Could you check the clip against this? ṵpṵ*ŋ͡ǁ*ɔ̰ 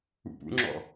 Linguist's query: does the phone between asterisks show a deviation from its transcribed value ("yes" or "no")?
no